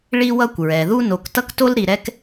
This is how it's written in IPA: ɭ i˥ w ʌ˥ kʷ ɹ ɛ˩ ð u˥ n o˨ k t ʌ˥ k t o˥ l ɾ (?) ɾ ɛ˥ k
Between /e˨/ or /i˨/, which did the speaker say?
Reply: i˨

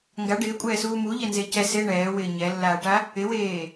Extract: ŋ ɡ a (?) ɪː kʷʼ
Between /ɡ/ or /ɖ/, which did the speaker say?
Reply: ɖ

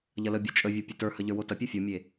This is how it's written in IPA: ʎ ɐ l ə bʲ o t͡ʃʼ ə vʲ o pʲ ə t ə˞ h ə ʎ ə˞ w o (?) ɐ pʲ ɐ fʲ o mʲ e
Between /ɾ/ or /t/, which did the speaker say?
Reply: t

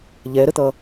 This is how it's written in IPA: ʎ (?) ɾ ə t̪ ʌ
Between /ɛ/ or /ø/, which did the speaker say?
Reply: ɛ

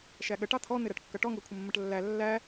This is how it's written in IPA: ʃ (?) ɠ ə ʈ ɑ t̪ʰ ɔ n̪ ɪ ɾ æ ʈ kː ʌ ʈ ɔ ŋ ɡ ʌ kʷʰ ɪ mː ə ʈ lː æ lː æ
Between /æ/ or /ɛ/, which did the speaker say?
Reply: æ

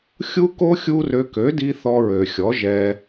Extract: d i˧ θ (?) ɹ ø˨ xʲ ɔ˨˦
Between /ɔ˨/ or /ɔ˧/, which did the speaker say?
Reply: ɔ˧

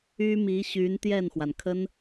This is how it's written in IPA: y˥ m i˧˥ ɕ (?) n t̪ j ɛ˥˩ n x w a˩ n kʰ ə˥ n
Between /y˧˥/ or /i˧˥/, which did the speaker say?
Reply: y˧˥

